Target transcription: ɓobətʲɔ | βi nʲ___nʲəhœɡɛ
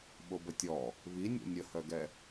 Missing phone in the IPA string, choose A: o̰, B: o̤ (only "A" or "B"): A